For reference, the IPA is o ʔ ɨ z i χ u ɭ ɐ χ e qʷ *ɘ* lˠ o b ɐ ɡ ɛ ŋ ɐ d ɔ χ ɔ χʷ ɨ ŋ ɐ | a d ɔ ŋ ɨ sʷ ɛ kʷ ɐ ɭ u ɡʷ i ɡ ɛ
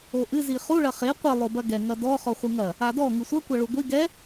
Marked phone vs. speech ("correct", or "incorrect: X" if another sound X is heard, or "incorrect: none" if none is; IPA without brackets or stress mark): correct